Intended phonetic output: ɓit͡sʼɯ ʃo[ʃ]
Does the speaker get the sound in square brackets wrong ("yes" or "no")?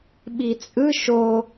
yes